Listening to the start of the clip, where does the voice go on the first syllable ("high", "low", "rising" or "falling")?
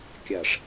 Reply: low